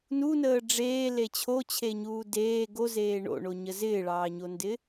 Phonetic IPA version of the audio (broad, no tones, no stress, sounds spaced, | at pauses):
n u n əː ɖ͡ʐ eː l e t͡ɕʰ o t͡ɕʰ e ɲ uː d eː ɡ o z eː ɳ o̰ ɳ o ɲ ə z ɪː ɭ ɑː ɲ o n d ɪ